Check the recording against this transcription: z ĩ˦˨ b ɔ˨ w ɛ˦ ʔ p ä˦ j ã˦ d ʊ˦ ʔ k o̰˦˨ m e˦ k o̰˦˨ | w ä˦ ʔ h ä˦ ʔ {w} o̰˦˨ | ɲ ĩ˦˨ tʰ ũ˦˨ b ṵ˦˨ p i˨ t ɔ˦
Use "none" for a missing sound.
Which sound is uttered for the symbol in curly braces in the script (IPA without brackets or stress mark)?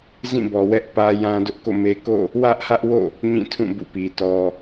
w